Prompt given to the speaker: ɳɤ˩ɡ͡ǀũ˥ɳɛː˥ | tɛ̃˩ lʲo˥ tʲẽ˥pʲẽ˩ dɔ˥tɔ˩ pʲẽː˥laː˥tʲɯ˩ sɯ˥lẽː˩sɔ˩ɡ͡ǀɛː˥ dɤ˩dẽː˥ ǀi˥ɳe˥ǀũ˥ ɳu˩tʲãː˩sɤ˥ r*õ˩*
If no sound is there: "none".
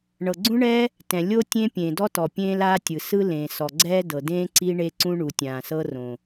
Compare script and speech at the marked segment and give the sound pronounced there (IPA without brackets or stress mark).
õ˩